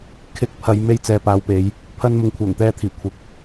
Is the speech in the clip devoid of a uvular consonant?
yes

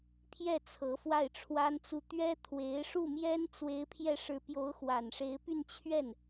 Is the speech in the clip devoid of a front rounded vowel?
no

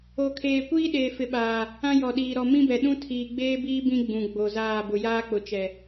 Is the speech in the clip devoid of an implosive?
no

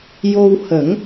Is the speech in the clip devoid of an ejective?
yes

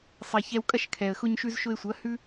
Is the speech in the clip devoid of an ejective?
no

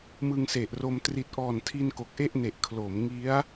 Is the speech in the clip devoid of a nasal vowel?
yes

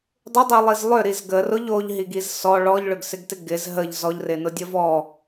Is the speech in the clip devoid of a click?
yes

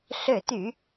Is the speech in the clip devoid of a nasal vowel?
yes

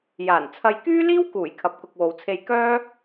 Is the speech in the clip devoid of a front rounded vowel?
no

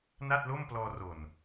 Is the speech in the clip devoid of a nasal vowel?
yes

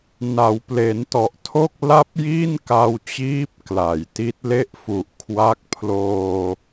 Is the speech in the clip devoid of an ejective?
yes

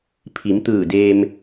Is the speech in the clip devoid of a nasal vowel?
yes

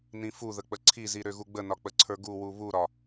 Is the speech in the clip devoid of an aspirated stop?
no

